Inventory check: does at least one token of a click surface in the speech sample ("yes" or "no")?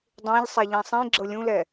yes